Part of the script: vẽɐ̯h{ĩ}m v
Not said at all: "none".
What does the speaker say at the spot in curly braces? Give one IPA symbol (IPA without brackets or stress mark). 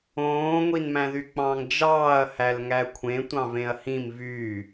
ĩ